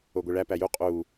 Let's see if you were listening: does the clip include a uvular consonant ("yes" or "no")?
yes